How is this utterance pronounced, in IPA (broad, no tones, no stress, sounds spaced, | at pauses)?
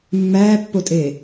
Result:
mː æː pː o tʼ e